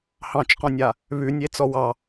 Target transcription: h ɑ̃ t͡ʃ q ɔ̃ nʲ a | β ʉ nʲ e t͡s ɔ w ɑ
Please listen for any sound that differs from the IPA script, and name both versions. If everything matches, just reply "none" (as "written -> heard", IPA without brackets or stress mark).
none